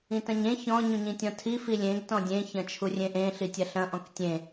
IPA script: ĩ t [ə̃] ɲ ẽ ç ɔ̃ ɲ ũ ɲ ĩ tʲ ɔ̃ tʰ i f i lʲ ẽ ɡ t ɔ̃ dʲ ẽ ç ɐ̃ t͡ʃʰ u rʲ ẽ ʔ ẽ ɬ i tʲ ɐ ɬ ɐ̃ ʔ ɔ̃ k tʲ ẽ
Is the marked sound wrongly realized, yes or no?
yes